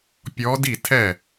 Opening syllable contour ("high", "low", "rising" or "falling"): rising